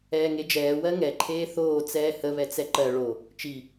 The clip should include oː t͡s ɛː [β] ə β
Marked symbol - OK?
no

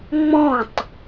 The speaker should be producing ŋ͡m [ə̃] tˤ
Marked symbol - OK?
no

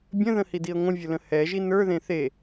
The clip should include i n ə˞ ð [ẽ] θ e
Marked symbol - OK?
yes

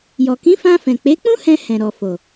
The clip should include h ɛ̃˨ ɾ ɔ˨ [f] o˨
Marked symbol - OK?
yes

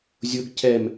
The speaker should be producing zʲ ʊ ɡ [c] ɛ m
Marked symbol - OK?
yes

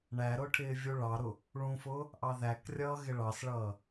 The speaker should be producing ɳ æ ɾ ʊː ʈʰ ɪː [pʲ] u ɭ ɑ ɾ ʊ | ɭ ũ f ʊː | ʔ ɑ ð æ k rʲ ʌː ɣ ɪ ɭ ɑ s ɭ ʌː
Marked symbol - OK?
no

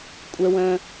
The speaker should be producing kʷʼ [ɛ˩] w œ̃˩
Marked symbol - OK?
yes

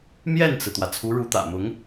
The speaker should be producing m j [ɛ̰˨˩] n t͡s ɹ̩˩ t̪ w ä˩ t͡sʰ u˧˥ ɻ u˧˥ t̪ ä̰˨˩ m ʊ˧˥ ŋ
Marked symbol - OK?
no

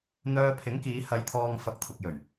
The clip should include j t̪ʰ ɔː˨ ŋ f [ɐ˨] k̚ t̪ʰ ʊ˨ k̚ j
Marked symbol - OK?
yes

